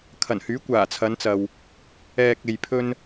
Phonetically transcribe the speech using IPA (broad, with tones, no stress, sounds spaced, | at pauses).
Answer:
kʰ ɐ˨˩ n h yː˨˥ kʷ aː˨˩ t͡sʰ ɐ˨˧ n t͡s ɐ˨ w | ɛː˨ k̚ e˨ j pʰ ɵ˧ n